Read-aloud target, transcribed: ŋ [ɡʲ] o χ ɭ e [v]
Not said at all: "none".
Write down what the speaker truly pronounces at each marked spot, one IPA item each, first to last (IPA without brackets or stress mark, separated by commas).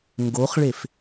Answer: ɡ, f